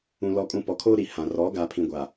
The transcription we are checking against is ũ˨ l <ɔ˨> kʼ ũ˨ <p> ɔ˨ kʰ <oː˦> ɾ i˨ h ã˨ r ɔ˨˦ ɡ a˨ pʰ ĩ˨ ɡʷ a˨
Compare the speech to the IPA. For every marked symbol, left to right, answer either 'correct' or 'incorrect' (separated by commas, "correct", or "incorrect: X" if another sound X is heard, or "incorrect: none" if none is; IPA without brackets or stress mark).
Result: correct, correct, correct